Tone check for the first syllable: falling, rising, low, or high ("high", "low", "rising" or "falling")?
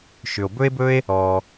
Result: low